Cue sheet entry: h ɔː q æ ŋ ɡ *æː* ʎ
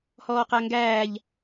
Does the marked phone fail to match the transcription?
no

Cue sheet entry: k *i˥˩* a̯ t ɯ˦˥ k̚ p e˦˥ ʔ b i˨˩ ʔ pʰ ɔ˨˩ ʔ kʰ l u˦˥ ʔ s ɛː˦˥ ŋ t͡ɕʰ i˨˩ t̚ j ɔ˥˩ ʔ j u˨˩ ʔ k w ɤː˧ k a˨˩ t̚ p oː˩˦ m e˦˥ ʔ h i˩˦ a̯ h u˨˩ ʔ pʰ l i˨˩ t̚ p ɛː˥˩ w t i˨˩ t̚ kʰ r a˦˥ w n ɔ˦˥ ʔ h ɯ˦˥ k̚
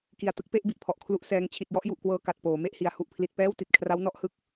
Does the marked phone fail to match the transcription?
yes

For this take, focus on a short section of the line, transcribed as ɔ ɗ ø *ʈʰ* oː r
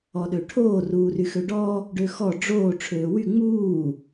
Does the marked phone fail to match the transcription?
no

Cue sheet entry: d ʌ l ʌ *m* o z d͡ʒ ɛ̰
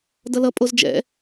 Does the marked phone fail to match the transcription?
yes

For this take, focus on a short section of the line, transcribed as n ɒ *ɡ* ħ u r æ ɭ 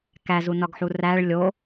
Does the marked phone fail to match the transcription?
no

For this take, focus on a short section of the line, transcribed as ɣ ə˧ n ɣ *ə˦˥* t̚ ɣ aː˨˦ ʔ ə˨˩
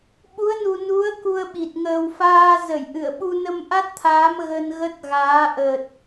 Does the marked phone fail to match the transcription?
no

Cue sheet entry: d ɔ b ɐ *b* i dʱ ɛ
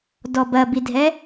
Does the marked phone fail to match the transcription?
no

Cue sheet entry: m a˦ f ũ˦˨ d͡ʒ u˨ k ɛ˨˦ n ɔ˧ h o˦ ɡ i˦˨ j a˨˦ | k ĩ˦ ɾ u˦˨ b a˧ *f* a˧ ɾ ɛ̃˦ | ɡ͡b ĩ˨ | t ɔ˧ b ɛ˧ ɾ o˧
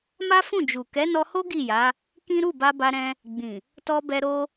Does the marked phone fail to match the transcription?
yes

